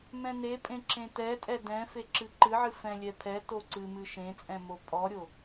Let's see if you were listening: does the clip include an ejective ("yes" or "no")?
yes